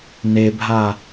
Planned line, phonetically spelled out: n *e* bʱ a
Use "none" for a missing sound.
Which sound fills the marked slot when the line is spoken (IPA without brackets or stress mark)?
e